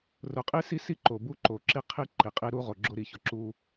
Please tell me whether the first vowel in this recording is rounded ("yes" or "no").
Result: yes